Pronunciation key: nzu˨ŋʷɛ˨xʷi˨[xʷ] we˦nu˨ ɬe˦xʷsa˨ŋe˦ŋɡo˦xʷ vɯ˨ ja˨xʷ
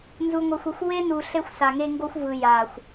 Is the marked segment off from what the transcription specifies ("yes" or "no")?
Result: no